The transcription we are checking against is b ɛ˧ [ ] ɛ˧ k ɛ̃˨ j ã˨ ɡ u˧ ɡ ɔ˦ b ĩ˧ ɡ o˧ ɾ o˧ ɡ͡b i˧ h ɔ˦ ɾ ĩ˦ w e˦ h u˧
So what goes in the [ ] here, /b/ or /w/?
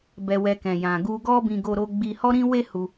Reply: w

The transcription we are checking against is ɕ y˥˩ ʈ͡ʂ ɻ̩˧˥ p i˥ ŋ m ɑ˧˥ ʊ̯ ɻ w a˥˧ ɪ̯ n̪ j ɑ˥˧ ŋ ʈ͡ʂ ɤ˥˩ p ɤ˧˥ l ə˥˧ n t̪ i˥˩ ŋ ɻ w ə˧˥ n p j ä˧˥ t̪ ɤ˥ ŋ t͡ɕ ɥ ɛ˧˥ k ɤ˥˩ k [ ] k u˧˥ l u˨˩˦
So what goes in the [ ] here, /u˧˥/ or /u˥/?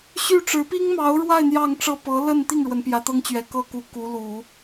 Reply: u˧˥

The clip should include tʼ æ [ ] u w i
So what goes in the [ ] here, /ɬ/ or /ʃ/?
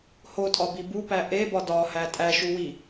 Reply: ʃ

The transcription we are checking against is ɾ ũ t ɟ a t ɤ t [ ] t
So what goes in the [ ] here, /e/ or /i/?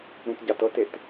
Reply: e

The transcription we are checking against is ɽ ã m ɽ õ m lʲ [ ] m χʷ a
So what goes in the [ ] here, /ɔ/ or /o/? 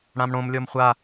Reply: ɔ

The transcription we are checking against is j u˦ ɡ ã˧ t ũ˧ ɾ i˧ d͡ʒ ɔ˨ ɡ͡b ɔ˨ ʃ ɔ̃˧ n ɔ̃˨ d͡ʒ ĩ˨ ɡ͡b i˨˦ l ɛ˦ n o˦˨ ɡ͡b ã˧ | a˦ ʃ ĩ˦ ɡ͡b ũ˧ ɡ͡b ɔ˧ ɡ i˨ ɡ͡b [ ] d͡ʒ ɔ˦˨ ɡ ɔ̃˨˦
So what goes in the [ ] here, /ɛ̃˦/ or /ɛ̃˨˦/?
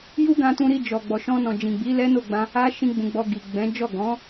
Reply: ɛ̃˨˦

